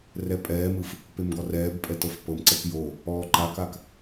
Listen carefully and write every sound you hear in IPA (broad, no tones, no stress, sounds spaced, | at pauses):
r ɛ pʼ ɛː m ɯ f | p e m ɡ ɔ r ɛː b pʼ ɛ t ɤ f p ɤ m ǀ ɛ k j o | ɔː ǃ a k a k